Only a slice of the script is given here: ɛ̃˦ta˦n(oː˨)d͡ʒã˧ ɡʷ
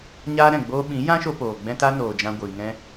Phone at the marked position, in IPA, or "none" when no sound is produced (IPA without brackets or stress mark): oː˨